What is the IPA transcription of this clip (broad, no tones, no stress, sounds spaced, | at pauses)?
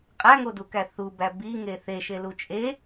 qʼ æ ŋ o d u k æ θ u b æ b i ŋ e θ e ʃ e l u t͡ʃʼ e